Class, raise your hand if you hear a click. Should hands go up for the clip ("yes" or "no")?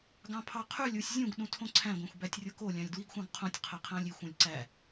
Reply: yes